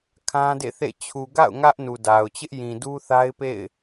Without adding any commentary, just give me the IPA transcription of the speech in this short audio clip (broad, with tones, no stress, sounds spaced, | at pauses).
kʰ ã˦ d ḛ˦˨ θ ḛ˦˨ t͡ɕʰ u˨ ɡ a̰˦˨ ʊ̯ ŋ ä˦ ʔ n u˨ d a˨ ʊ̯ t͡ɕ ɪ˦ ʔ j ĩ˨ d u˦ θ a˦ ɪ̯ p ḛ˦˨ ɪ̯